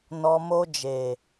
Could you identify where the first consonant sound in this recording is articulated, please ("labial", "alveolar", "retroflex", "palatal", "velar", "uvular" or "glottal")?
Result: alveolar